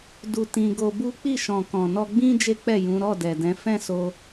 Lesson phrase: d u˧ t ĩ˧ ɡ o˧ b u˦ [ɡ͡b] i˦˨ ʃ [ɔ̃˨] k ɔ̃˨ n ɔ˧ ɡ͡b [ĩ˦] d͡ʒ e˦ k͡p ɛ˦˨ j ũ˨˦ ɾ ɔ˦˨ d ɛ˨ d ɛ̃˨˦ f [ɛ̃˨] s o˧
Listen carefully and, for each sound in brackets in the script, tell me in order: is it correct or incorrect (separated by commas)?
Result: incorrect, correct, correct, incorrect